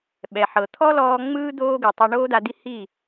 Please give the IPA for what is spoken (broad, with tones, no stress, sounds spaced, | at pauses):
ɓ ɛ˨ ħ ɤ˨ t̪ʰ ɔ˦ l ɔː˧ ŋ͡m ɯː˦ d̪ oː˦ ɡ ɯ˨ tˤ o˧ ɳ oː˦ d̪ a˧ d̪ i˦ h i˦˨